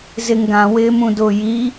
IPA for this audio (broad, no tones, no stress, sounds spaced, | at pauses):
z ɪ ŋ ɡ ã w ɪː m ũ d ʊː j i